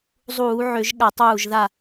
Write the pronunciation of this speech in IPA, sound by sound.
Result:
zˤuː˧˩˧ ʕø˧˩˧ʒɠa˧˩˧tˤ uː˧˩ʒða˧˩

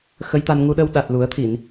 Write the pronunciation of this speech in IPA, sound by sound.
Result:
xə˧˥jt̪a˧n ŋu˧ɗə˧w ɗa˨˩t̚lu˨˩˦ə̯t̪ʰi˨˩˨n

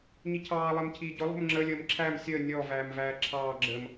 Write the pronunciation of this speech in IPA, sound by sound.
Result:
ɲicʰɑː lˠɜmcʰiːɟʊ lˠṳmŋ͡ǁə lʲəːmǁʰæm sʲəː nʲɔ væːmvæːǁʰɑː ɡ͡ǁəm

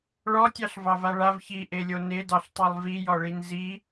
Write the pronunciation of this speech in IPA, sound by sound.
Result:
ɭɔtʲɑɬ vɑvaɭav çiʔelʲo nedɑɬtˤelˠ vijɔɭin zi

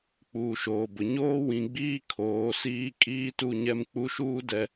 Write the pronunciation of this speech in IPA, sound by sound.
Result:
k͡puː˨ʃoː˨bʊ˨ ɲoː˦ wĩ˨ɡ͡biː˦ kʰoː˨˦siː˦ kʼiː˦tu˦˨ɲɛ˦m k͡pu˦ʃuː˦dɛ˨

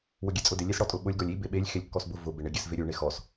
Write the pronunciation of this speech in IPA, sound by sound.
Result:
wʊɡʲɛt͡sʼʊdɪ lʲesɽɔtʼʊɓʊlʲ ɡɔlʲi beɓelʲ xelʲkːɔsbʊ vʊ bɪɳɪ ɡʲɛsveɾʲu ɳexɔs

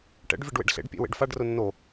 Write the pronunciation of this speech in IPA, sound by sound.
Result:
ʈɛ̰ɖ vʲɛɖwḛɖɬḛɖpʲḛ wḛɖfaɖrʊ nːo

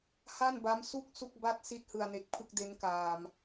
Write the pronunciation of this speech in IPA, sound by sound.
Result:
ha˥˩nba˦˥msu˥˩k̚ su˥˩k̚ba˥˩t̚ si˥˩t̚hɯ˨˩a̯ne˨˩k̚ pʰɯ˥˩k̚de˦˥nkaː˨˩m

